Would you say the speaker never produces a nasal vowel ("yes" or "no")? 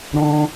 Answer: no